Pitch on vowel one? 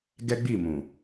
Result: high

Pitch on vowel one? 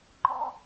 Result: high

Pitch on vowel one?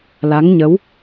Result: rising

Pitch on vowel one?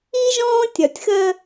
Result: high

